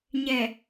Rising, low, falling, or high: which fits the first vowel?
low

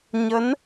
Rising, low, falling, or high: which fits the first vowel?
rising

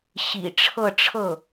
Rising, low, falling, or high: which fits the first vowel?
low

